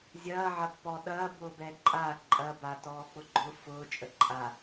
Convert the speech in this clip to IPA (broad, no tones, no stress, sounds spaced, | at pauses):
zʲ ɐː ʕ ɐ pː ɔ ɗ ɐː b ʊː b ɛ ǃʼ a ǃʼ ɐ b a t ɔː k͡p ʊ ɡ͡ǃ ʊ f ʊː t͡ʃʼ ə ǃʼ a